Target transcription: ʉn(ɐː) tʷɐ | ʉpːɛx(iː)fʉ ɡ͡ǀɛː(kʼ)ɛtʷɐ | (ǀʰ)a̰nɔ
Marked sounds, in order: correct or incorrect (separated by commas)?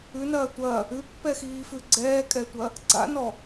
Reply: correct, correct, correct, incorrect